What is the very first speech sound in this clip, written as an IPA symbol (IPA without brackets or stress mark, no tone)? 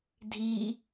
dʱ